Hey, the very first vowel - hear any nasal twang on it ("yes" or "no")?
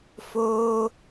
no